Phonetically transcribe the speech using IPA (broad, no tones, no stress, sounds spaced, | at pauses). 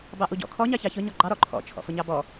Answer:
b ɑ ʔ u ɟ ɔ̰ kʰ ɔ ɲ ɑ ç ɑ ç ʊ ɲ ɔ ɡ͡ǃ ɑ ɾ ɔ ǃʰ ɔ̰ t͡ʃʰ ɔ̰ f ʊ ɲ ɑ b ɔ